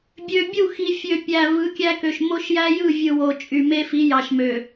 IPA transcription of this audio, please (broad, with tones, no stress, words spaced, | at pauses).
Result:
bʲø˨bʲu˦˨xi˨ fʲø˨pʲæ˨ vɯ˨˦kʲæ˦kø˨ʃ mo˦ʃjæ˦jɯ˦˨vʲɯ˨ wo˨t͡ʃʼy˨me˦fi˨˦ jɑ˨ʃmø˨